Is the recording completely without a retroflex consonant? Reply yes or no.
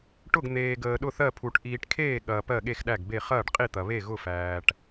no